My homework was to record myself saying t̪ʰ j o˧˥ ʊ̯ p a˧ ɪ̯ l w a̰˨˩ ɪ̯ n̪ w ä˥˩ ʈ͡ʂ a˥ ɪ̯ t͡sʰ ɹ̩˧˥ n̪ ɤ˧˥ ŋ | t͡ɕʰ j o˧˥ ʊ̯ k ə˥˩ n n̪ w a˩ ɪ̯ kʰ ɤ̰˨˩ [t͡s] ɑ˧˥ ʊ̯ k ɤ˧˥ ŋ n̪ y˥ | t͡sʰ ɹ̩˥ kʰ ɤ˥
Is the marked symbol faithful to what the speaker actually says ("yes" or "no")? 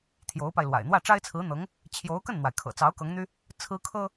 yes